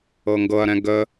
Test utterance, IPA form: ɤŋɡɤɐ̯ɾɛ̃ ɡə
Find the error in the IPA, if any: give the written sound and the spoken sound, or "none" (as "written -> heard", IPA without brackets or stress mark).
none